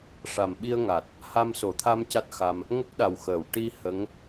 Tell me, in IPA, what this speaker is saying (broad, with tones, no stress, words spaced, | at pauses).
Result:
ʂa˨˩mɓi˧ə̯ŋa˨˩t̚ | ha˧mso˨˩˨t̪ʰa˧m ca˦˥t̚xa˧m | ŋə˦˥k̚ɗa˨˩wxəː˨˩˨w ʈi˧ hə˧˥ŋ